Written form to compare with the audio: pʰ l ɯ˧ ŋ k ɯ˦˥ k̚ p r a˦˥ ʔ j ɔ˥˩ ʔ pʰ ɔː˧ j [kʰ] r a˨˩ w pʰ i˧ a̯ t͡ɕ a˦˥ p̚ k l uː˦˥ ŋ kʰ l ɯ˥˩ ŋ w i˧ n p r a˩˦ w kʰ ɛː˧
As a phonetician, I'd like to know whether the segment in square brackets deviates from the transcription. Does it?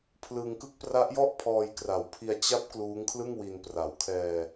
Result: yes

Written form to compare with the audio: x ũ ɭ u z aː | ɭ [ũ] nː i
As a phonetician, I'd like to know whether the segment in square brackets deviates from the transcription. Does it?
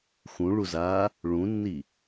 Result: no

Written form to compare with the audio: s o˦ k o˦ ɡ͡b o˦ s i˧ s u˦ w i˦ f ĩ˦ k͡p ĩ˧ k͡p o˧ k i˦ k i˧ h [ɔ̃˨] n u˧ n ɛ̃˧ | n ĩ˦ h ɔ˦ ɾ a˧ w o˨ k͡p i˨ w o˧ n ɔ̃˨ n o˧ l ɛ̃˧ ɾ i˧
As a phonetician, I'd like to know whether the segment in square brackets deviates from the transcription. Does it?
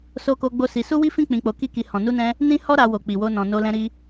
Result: no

